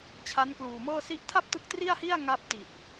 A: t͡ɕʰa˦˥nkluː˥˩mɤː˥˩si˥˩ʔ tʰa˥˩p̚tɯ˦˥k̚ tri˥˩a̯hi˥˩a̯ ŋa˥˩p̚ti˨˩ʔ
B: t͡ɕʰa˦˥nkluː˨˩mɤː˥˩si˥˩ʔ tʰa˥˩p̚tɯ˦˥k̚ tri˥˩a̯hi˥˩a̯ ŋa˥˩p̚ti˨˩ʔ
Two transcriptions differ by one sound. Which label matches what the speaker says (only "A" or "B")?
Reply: B